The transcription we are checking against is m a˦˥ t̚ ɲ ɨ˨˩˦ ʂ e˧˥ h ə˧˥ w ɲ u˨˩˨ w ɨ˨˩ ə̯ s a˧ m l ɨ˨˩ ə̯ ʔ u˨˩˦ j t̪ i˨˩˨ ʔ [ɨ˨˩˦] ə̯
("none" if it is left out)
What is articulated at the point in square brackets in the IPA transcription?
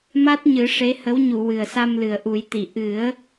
ɨ˨˩˦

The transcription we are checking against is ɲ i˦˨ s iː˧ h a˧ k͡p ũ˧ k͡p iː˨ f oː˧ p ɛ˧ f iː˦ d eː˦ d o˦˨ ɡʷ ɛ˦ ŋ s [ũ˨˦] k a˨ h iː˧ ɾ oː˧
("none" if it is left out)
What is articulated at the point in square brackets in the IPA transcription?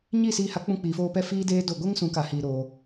ũ˨˦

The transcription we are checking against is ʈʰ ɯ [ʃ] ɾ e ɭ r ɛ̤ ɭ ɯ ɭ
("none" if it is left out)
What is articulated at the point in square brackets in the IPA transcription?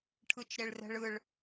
t͡ʃ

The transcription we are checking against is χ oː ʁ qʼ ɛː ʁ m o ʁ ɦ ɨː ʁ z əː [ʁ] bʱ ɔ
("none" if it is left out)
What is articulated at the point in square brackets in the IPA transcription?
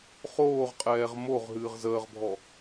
ʁ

